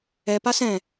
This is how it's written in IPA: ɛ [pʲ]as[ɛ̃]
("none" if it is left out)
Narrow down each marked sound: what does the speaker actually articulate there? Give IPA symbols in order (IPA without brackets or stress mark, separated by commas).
p, ɛ̃